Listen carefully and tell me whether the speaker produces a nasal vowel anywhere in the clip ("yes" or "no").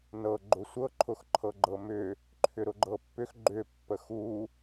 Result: no